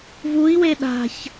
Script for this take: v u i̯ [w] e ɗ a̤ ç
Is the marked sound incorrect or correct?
correct